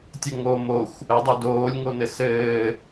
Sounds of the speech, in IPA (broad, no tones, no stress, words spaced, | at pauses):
tʲɘŋo moxʷ | ədˤo doːlʲŋonɘ sɘː